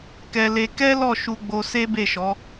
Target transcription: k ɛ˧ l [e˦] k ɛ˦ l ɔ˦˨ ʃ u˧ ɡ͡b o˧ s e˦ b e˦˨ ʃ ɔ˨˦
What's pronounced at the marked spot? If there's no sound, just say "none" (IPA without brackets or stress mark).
e˧